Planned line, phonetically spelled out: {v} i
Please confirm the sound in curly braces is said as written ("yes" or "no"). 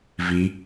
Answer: yes